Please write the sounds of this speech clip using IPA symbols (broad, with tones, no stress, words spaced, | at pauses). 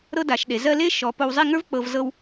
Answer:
ɾɤ˥da˩˧ʃɗe˩˧zɜ˥ le˥ ʃɔ˩˧ po˧wzˤi˥˧ŋə˞˥vk͡pɤ˧v zɤ˥w